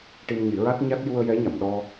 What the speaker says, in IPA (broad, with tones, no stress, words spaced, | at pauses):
ʈi˧mɲi˨˩˦ɹa˦˥t̚ɲa˦˥t̚ ju˧ə̯jɛ˧˥ɲa˨˩˨mɗɔ˧